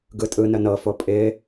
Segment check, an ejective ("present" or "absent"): present